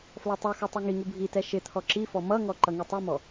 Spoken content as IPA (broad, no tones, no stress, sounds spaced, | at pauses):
f l ɔ tˤ u x u tˤ u ŋ i ŋ u bʱ i t ɛ ʃ ɪ t̪ʰ ɔ ǁ i f ɔ m ʌ ŋ ɔ ǃ ʌ ŋ i tˤ i m ɔ